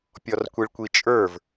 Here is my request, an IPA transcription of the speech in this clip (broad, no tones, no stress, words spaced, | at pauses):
pʲɔrkʷiɭkʷit͡ʃʼə˞v